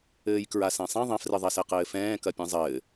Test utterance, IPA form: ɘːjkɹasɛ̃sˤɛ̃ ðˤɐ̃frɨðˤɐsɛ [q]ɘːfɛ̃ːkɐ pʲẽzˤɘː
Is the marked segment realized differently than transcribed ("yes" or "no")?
no